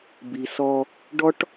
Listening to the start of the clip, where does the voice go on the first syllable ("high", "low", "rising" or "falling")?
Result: low